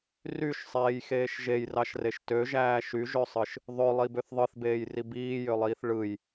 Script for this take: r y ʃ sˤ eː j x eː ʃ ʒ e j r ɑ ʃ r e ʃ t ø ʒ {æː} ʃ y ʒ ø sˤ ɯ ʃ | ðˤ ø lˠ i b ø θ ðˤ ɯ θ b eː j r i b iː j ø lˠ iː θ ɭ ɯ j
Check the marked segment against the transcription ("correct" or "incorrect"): correct